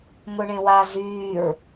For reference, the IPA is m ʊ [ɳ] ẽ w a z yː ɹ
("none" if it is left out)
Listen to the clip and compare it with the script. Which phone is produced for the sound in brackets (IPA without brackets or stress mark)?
ɳ